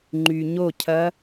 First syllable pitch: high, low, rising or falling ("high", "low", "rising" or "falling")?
low